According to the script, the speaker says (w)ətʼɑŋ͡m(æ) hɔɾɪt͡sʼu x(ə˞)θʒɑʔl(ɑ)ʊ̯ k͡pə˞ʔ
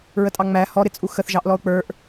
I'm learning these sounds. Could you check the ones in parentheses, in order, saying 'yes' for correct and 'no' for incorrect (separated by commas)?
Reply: no, yes, no, no